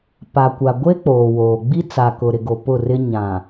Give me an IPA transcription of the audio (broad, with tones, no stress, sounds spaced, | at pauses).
p a˨ kʷ a˨ ɡʷ e˦ k͡p oː˨ w oː˨ ɡ͡b i˦ t͡s a˨ k ʊ˨ ɾ ɪ˨ ɡ o˨ p ʊ˦˨ r ɪ˦ ɲ ã˨